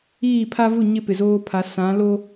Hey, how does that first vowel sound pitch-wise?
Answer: falling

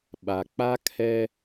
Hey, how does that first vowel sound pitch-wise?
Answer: low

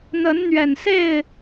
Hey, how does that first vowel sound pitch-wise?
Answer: rising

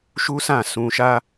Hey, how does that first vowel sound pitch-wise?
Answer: high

